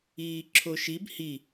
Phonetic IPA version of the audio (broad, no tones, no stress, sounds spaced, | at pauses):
iː ǁʰ o ʃ i b h i